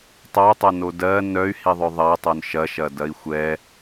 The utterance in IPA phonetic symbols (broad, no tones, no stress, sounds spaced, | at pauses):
tˤ ɐ y̯ tˤ ɐ n o d ɜ n œ y̯ h i ðˤ œ ðˤ ɐ tˤ œ n ʃ ɐ ʃ ɐ d ɐ i̯ xʷ ɛ